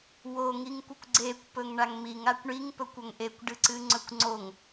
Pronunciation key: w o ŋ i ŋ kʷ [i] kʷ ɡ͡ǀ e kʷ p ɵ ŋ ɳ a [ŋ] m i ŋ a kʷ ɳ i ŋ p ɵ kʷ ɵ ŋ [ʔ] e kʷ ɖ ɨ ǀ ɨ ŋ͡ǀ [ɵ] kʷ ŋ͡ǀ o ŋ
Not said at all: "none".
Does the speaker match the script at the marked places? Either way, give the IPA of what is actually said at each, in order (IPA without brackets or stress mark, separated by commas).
ɨ, ŋ, ʔ, ɵ